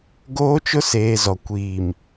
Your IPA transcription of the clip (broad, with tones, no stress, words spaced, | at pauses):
ɡoː˦t͡ʃʊ˦seː˨ zɔ˨ kʷiː˨m